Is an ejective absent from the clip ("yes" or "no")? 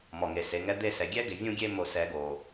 yes